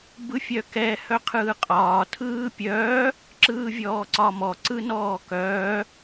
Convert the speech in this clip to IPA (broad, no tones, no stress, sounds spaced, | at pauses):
b ɯ fʲ œ k ɛ h œ qʰ ɯː qʼ ɒː tʰ ɯː pʲ œː | ǁ ɯː vʲ ɔː ǀ ɒ m ɔ ǀ ɯ n ɔː k œː